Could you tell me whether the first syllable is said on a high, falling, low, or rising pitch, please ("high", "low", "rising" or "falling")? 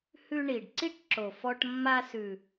high